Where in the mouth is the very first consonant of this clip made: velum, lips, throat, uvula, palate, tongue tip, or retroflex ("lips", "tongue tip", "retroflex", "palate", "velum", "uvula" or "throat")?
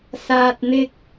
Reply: tongue tip